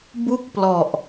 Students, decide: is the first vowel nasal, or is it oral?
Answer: oral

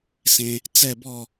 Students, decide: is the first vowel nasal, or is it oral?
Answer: nasal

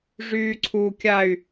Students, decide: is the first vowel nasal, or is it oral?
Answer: oral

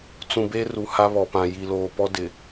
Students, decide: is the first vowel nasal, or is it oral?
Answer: nasal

